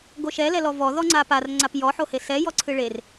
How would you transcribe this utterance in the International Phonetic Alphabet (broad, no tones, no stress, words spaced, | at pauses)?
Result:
ɡoʃɛlɛlɔ vɔðɔ ŋ͡ǀapar ŋ͡ǀapjɔħohe sɛjɔǀʰɨ ɭer